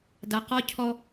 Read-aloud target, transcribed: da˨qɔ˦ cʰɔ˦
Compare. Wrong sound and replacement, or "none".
none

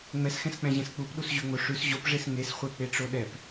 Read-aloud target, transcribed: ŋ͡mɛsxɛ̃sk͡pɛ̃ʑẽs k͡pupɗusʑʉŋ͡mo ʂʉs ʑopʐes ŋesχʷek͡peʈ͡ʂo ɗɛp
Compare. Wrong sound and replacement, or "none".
none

